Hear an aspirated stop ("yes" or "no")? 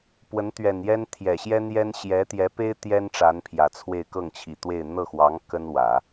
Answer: yes